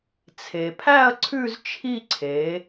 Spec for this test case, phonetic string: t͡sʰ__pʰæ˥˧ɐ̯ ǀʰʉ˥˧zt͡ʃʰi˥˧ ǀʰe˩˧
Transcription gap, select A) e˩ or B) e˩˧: A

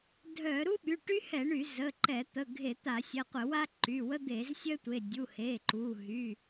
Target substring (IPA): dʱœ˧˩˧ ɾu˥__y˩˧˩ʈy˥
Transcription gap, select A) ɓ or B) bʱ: A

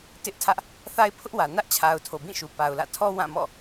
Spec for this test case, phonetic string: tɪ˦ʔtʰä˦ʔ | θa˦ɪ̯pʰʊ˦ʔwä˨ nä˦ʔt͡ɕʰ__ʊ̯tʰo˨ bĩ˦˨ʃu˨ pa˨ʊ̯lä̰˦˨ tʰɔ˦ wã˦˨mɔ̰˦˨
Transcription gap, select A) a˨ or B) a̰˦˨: A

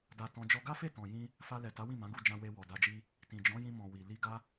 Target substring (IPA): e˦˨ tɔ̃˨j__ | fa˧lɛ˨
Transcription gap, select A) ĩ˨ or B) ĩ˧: B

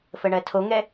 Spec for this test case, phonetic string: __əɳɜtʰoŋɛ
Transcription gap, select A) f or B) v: A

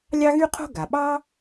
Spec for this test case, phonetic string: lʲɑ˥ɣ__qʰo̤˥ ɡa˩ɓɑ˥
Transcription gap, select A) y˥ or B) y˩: A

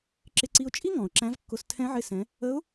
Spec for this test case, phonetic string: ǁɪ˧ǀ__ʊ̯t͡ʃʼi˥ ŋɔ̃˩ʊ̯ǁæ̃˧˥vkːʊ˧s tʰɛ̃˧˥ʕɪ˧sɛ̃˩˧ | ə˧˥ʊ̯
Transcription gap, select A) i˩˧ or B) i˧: B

